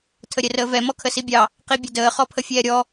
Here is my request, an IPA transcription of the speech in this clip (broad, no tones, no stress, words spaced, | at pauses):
tʰəɾʲɛrəːvɛ mɔkʰəsibʲɑ | qibʲʊdəː χɔpʰəfʲɛːɾʲɔ